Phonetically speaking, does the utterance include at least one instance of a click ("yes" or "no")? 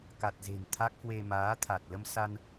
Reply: no